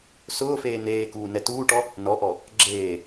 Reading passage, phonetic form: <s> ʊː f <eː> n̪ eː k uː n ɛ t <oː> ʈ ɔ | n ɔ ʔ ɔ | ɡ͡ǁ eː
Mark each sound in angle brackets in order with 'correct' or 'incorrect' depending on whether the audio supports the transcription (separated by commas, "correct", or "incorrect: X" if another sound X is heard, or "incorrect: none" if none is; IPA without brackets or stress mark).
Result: correct, correct, incorrect: uː